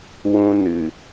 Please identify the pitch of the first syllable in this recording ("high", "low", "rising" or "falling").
high